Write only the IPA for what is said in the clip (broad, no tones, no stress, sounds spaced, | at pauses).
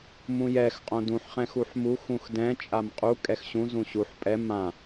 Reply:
m ũ j ɛ x qʼ õ d ũ ħ χ ɛ̃ x u ħ m u x ũ x d ɛ̃ t͡ʃʼ a m qʼ u kʼ ɛ x ɕ ũ z ũ ɕ u ħ pʼ ɛ m ã